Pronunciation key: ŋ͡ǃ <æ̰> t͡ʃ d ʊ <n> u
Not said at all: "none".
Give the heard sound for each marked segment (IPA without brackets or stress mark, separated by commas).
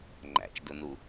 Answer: æ̰, n